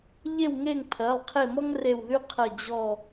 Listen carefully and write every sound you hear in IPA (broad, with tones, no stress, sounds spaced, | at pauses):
ʎ e˦˨ w ŋ e˦˨ ŋ pʰ ɜ˩˧˩ lˠ qʰ e˦˨ m ɔ˥ ŋ r e˦˨ w ð y˥ qʰ ɜ˦˨ d͡ʑ ɔ˦˨